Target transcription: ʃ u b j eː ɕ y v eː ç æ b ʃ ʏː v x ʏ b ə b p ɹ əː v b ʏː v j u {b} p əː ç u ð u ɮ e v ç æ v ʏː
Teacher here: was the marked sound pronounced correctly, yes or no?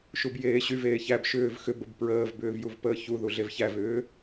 no